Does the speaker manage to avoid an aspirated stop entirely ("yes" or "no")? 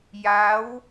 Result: yes